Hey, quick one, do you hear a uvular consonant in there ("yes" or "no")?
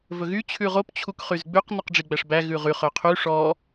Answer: yes